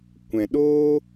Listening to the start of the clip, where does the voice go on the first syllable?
low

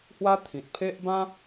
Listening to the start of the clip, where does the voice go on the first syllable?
high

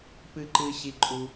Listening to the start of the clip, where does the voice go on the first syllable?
high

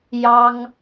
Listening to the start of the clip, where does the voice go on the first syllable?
high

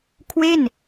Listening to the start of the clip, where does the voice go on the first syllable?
falling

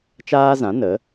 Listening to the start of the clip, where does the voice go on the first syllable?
high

